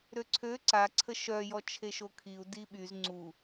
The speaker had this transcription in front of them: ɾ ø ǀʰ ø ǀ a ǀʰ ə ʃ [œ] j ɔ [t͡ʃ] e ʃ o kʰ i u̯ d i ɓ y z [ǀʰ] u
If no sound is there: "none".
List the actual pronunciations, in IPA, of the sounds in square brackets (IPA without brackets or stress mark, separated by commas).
œ, t͡ʃʰ, ŋ͡ǀ